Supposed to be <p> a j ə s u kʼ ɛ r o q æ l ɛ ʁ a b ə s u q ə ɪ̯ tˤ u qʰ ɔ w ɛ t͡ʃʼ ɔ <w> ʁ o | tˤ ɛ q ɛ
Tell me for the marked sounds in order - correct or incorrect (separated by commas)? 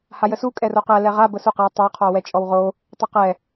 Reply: incorrect, correct